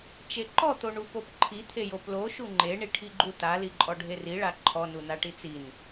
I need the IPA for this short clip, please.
t͡ʃeǃɔ t̪oɳupopǃʰi t̪ʰejoplo ʃuŋ͡ǃe ɳiʈʰiɡ͡ǃuta liǃʼɔɖʱeri ɭaǃʰɔ nunaʈit͡sin

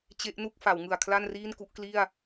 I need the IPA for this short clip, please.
t͡ɕe˦˥ʔnu˥˩k̚ fa˩˦wŋɯ˨˩a̯ kʰla˥˩nriː˥˩n ku˦˥ʔkli˥˩a̯

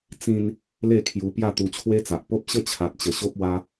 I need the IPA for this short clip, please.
t͡sĩ˧n | le˥˧kʰju˧ pja˥˧t̪u˧t͡ɕʰwe˦t͡sa˨ʔ po˦p̚ɕə˥˧ t͡ɕʰa˨t̚t͡ɕə˨˩ɕo˦p̚wa˦

